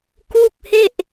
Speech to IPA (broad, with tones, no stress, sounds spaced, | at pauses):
k u˥˩ k̚ h e˥˩ ʔ